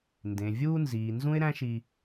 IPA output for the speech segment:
n d ẽ˩ vʲ uː˧ n z iː˩ n z ũ˥ ɪ̯ ɾ æ̃˥ ʃ i˧

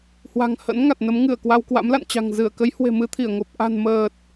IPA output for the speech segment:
h w a̤˨˩ ŋ h ə̰˧˥ n ŋ a˨˩ t̚ n ə˨˦ m ŋ ɨ˧˩ ə̯ k w a˧ w k w a̰˧˥ m l a̰˧˨ n t͡ɕ a̤˨˩ ŋ z ɨ˧˩ ə̯ k ə˨˦ j h w e̤˨˩ m ɨ˧ t̪ʰ i˧˩ ə̯ ŋ o˨˩ p̚ ʔ a̤˨˩ n m əː˨˩ t̚

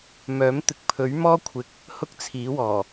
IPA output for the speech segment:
m œː˨˥ m t̪ ɪ˨˥ k̚ pʰ ɵ˨˥ ɥ m ɔː˥ kʷʰ ɪ˨ k̚ | h ʊ˥ k̚ t͡sʰ iː˨˥ w ɔː˨˩

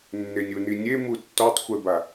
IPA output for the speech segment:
nː e nʲ u n i nʲ e m u tː ɔ tˤ xʷ ɛ b a

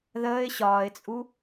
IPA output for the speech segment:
ð əː ɪ̯ ɕ ɒː ɪ̯ t͡sʼ u

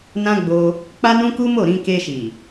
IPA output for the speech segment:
n ã˦ ɡ͡b o˧ | k͡p a˦ n ũ˦ k u˦ m o˦˨ ɾ ĩ˧ k e˧ ʃ i˨

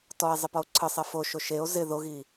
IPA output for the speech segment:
t ɔ e̯ zˤ ɪ p ɔ o̯ ǀʰ ɨ sˤ e f o ʃ o ʃ e o̯ z ɪ ð o ɣ i

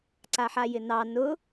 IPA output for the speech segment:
ǀ a ħ a j ɪ n ɑ n ʊ

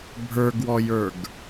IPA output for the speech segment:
bʱ ə˞ ɡ w ɔ j ə˞ ɡ

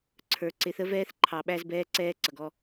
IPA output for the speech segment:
ǀʰ ə˞˨ ǀ ɪ˨˦ θ ə˦ v ɛː˦ θ ǃʰ ɑ˨ ɓ æ˦ z b ɛː˦ ǀ ɛː˦ ǀ ʌ˨ ɡ ɔ˦

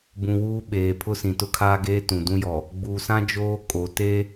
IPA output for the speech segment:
b ũ˨ w uː˦ ɓ eː˨ pʰ ʊ˦ s ĩ˨ t ʊ˦ kʰ aː˦ ɡ eː˦ t ũ˨ d ũ˦ j ɔ˨ | ɡ͡b uː˨ s ã˦ d͡ʒ oː˦ kʼ o˨ t e˦

